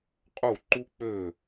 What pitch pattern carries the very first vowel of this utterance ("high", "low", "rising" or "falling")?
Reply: falling